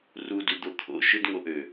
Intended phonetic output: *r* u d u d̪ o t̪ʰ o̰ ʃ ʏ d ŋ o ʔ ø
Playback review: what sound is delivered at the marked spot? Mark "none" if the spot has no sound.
r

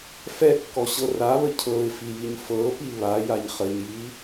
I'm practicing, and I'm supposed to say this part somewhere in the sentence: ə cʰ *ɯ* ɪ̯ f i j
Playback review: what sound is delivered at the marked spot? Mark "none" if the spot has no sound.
ɤ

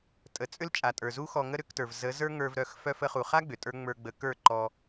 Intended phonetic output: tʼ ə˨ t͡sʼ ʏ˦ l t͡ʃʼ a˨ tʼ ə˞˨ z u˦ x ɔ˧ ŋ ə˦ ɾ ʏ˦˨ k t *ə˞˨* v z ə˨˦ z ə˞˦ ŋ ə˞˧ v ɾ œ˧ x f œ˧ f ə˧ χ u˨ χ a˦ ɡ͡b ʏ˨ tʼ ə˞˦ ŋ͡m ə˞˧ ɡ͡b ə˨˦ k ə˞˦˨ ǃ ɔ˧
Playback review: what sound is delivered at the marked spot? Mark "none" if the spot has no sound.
ə˞˨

